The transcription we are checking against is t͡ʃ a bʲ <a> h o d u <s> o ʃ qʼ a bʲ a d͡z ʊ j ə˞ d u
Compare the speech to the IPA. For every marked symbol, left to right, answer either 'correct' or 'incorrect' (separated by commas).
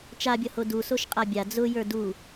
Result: incorrect, correct